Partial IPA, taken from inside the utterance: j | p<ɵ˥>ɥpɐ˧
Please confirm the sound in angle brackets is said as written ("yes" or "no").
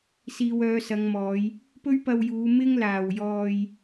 yes